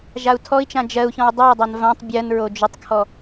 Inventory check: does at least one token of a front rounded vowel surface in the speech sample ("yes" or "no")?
yes